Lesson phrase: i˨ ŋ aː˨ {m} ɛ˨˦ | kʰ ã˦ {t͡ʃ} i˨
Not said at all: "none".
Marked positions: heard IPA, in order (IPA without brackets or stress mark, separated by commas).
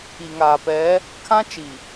p, t͡ʃ